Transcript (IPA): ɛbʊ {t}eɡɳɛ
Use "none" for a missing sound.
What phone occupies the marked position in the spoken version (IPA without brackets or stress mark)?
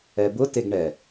t